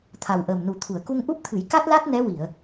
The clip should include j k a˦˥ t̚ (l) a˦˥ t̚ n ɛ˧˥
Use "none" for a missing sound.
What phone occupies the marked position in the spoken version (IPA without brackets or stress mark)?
l